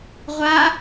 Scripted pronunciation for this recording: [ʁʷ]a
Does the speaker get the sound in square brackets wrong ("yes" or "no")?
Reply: no